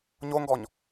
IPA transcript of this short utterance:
ɲoŋɡɔɲ

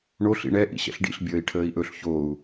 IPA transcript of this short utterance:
ɳoɬ ḭɳɛ ʔḭɕɛ̰ɬɖḭɬ bʲəːi̯ʈʰəːi̯ʔɵɬ çou̯

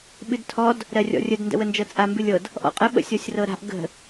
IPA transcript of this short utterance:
ɓɨdtʰɔd | ɾɜrʲɔ̰rʲəd ndə̰wənd͡ʒɤt͡sʼa mbɨlʲɤd | ʔɔ̰qʼə ɓə̰sʲɔsʲrɤɾa̤ʔ ɡə̤

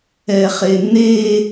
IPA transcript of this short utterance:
ɛχene

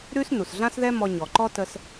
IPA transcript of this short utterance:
ɾʉ˥s nu˩sɮã˥sðɛ˥ mɔ˧ɲɔ˩ǃɔ˥ tə˧s

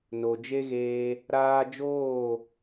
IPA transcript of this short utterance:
no˨d͡ʒe˦ɣeː˧ | ɾaː˧d͡ʒoː˦˨

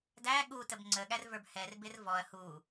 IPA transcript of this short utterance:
dæ ɠu təbŋ͡ǀəɠær və˞bhɛrbɪr vɔɐ̯ hu

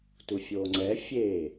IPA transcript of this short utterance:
tufʲoːŋ͡ǀɛ fʲeː

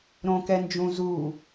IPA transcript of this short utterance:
ɾõkɛnd͡ʒũ zu

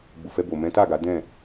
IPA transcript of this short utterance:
ɡ͡bu˨fɛ˧bo˨ mɛ̃˨˦ta˦˨ ɡa˨˦ dɛ̃˦˨

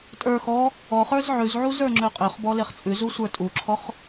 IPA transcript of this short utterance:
tʼə˞ xɔ | ɔχə˞z ʕʉzʕuz ə˞ŋ͡ǁøqʼøχbɔ leχt͡sʼʉzu sʷə˞tʼuǁʰɔχ

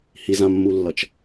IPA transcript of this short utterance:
hizãmːulːʌt͡ʃ

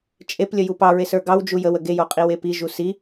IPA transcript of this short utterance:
t͡ʃʼeplʲə jupɑɹes ə˞ɡɑwd͡ʒu jəwə ɡejo qʼiwepiʒu si

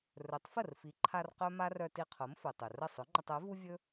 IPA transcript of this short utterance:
rɵ˩˥tˤfə˥˩rfi˩˥ǃʰa˧r qœ˥ma˥r œ˧ ti˧qʰo˩˥mfɵ˩ tˤɵ˩rə˥˩ sˤɵ˩˥ŋ͡ǃə˧tˤ œ˩˥vu˥vʲɵ˥

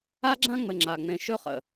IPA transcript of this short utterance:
a˦ɡ͡ǁã˦ŋ͡mɘ˨ ŋ͡ǁa˨ ŋ͡mẽ˨ʃɵ˦χə̰˨

